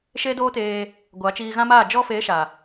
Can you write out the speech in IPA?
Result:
ʃe˦doː˦teː˧ | ɡʷa˨˦ t͡ʃiː˧ɣã˦maː˦˨ d͡ʒɔ˧ feː˨˦ʃa˨

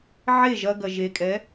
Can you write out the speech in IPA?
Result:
ʕe ʒɐɡɐ ʒekʼɛ

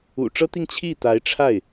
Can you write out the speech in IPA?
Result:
ṵ˨˩ʈ͡ʂɤ˥t̪i˥˧ŋ t͡ɕʰi˥˩t̪a˧˥ɪ̯ʈ͡ʂʰa˥˩ɪ̯

